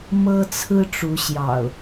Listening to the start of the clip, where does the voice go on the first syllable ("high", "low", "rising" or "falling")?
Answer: high